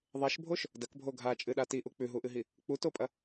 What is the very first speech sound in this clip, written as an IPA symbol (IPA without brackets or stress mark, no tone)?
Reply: ðˤ